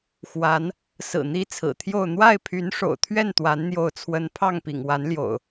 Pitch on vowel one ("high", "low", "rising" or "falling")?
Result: rising